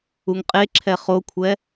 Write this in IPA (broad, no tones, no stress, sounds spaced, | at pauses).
u ŋ qʼ e ǁʰ ɛ χ o kʷʰ ɛ